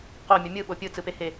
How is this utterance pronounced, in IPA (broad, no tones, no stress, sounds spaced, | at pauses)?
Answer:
q o mʲ ʌ mʲ ɯ ɓ o pʲ ɯ t͡s ɯ p e h e